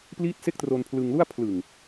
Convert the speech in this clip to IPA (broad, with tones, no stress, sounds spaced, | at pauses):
p l iː˥˩ t̚ s e˥˩ k̚ t r o˧ n pʰ l ɯ˧ ŋ l u˥˩ a̯ pʰ l ɯ˨˩ ŋ